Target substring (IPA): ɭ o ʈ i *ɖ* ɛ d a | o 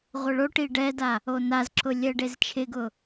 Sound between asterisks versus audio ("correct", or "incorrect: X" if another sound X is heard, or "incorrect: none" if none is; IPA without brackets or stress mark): correct